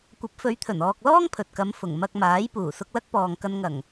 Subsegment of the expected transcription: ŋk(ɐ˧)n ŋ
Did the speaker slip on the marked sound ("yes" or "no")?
no